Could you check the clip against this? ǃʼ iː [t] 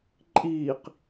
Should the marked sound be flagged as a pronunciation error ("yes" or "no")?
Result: yes